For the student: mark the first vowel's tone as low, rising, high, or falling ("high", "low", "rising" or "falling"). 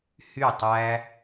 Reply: falling